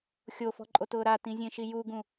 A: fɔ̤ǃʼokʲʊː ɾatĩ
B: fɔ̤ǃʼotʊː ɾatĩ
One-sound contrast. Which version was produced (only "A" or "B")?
B